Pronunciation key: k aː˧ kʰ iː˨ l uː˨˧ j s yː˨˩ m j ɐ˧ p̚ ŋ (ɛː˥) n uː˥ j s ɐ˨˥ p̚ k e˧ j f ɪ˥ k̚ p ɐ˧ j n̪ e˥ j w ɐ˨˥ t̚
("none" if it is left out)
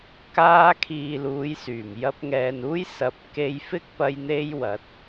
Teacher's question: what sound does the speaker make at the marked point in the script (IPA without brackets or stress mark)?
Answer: ɛː˨